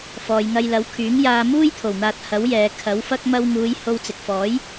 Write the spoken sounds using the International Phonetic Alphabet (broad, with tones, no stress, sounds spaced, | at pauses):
f ɔː˨ j ŋ ɐ˧ j l ɐ˨˥ w kʰ yː˨˥ ŋ j aː˧ m uː˥ j t̪ʰ o˨˩ w n̪ aː˧ t̚ h ɐ˨˥ w j ɛː˨ kʰ ɐ˨˥ w f ɐ˥ k̚ m ɐ˧ w ŋ uː˨˧ j h o˧ w t͡s ɪ˨ k̚ f ɔː˨˥ j